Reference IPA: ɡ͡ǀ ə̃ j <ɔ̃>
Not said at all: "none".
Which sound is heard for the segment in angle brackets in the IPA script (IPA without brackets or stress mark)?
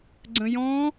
ɔ̃